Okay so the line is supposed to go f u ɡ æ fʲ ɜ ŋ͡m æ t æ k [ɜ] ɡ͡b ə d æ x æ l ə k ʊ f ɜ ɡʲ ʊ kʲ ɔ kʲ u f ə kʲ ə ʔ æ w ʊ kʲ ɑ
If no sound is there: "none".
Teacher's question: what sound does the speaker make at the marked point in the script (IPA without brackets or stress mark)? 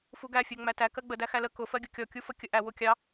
ɜ